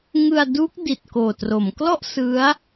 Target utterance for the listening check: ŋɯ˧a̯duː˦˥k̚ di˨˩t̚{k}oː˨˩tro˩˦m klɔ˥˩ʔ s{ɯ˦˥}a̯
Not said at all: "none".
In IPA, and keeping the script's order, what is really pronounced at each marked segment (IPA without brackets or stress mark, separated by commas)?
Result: k, ɯ˦˥